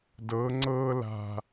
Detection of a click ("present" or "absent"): present